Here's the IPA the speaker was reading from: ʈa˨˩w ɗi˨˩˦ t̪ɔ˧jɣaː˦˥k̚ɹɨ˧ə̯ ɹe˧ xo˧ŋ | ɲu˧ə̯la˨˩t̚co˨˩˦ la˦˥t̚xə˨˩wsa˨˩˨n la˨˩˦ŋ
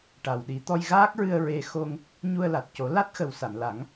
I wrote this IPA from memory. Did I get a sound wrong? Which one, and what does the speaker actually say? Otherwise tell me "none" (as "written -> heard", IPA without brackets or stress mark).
none